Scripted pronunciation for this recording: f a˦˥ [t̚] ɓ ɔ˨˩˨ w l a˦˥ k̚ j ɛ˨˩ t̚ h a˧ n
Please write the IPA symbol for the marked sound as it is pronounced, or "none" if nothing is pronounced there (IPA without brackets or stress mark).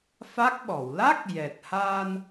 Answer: k̚